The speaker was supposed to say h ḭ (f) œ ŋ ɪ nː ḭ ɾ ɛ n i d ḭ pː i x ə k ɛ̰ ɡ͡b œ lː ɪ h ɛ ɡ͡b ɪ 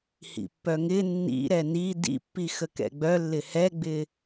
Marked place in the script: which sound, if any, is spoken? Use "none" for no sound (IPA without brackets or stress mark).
pː